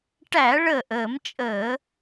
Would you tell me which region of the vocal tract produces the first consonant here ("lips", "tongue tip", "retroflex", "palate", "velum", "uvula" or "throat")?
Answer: retroflex